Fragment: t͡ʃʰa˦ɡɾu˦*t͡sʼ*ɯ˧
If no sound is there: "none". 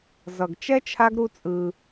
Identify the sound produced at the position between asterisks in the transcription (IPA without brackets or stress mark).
t͡sʼ